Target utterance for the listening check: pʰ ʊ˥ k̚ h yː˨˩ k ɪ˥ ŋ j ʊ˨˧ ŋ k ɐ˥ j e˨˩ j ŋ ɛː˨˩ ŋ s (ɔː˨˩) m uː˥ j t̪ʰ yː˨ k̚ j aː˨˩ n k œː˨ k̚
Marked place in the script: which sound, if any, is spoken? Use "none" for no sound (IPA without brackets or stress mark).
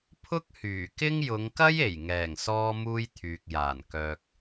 ɔː˥